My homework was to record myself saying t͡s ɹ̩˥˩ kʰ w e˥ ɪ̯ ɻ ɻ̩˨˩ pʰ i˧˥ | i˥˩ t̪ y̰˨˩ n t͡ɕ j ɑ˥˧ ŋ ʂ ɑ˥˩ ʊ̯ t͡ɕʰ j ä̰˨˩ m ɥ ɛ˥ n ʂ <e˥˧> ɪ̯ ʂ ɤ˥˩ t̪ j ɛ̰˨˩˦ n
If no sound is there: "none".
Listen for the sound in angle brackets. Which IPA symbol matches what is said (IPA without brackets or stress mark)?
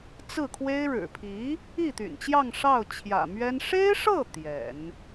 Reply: e˥